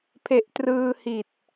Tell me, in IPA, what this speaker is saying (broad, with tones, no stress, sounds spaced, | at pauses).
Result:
pʰ e˨˩ ʔ t r ɯː˧ h i˨˩ t̚